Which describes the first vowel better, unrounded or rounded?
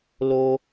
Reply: rounded